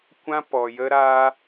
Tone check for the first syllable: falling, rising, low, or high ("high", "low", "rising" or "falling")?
high